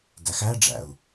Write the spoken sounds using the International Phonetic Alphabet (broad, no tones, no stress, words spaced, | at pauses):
dæxæɖ͡ʐæ̰u̯